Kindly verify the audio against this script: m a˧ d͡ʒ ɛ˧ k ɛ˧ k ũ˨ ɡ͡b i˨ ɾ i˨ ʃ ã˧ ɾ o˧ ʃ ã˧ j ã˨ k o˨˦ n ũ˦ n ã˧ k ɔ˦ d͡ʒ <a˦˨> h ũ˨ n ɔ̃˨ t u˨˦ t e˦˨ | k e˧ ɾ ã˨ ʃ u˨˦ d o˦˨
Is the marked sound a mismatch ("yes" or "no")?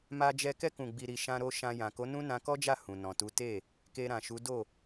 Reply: no